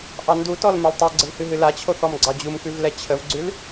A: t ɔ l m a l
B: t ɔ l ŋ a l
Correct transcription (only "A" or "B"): A